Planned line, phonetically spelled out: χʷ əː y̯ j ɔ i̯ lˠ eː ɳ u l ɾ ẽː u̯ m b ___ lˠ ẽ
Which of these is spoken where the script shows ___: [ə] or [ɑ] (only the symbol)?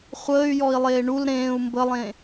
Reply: ə